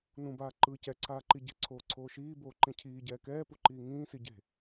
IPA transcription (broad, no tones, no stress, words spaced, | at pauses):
nũbaː ǃɯ cɛǀaːǃi ɟɛ̤ǀʰoːǀʰoː ʃiːboːǃĩ cʰiːɟɛː kɛːpuǃiː ŋĩːsi ɟe̤